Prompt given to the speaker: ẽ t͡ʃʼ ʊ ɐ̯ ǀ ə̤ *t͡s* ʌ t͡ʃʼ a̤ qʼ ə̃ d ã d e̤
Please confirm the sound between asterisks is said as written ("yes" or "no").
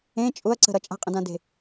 no